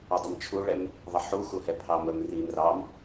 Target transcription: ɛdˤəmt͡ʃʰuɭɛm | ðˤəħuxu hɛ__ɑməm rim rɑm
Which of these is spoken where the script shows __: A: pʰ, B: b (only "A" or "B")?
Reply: A